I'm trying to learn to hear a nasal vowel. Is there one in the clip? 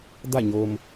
no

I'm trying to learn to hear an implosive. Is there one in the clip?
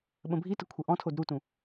yes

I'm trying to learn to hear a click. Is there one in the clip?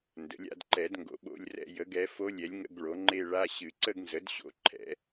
yes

